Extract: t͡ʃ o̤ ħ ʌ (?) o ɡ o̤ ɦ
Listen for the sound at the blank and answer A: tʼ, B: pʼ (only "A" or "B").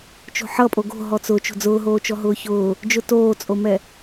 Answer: B